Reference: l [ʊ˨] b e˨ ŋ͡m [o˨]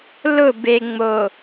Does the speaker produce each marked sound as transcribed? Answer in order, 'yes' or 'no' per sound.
no, yes

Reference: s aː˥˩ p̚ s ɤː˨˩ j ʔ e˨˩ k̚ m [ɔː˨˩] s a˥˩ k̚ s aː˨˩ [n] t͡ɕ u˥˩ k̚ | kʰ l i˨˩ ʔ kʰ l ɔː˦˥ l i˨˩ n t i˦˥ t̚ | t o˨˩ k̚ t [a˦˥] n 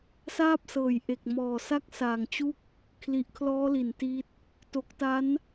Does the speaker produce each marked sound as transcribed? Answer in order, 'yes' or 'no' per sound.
yes, no, yes

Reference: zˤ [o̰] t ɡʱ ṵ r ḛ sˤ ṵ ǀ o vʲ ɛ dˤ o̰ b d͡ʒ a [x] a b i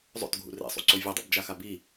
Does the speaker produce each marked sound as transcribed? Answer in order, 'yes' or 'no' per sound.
yes, yes

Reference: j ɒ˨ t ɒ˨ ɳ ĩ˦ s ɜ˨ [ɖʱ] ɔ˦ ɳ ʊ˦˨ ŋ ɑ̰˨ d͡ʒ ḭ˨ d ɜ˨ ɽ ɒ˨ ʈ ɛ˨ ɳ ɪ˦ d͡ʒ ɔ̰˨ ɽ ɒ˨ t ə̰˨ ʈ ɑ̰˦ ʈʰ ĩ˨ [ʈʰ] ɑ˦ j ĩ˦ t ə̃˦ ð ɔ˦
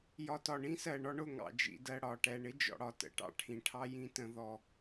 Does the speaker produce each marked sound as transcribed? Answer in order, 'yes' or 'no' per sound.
no, yes

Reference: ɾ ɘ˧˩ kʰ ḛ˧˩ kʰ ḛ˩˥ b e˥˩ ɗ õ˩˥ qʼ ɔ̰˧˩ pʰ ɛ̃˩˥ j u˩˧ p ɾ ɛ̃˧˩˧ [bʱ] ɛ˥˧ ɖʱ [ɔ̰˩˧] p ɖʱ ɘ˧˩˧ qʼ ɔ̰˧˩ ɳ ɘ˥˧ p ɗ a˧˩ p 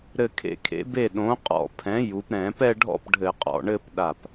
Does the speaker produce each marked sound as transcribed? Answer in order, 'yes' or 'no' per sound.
no, no

